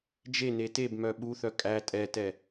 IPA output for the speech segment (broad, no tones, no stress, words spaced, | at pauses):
d͡ʒe netebmœ ɓuθœ kʼæ tʼɛtɛ